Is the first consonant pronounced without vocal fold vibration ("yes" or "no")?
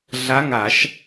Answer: no